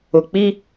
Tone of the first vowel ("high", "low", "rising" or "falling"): low